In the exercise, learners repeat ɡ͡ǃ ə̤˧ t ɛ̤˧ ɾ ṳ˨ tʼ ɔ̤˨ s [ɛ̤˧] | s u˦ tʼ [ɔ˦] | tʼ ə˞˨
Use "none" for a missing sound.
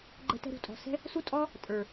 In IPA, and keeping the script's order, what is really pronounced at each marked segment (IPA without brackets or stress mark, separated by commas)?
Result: ɛ̤˦, ɔ˦